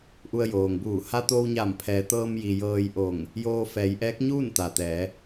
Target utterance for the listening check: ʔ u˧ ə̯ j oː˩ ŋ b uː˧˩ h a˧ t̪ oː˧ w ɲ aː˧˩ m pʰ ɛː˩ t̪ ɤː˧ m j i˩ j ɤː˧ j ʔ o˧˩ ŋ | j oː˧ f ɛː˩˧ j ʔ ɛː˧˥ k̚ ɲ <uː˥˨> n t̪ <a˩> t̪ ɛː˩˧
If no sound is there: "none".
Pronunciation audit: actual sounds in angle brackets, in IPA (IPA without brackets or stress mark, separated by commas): uː˥˨, a˩